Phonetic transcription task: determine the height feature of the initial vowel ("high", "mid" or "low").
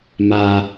low